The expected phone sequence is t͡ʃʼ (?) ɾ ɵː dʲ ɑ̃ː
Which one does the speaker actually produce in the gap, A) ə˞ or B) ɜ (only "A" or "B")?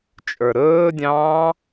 A